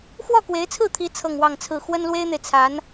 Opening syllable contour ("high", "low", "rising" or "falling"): falling